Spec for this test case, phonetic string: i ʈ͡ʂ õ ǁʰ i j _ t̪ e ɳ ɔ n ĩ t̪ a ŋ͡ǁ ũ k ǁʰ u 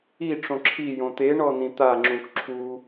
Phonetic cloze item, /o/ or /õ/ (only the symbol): õ